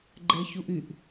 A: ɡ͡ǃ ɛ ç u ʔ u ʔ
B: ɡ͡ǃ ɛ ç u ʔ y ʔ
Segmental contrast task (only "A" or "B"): B